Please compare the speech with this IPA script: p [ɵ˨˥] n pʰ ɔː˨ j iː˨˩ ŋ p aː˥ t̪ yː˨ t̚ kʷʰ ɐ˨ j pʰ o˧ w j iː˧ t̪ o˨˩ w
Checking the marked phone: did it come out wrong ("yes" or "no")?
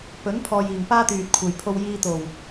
no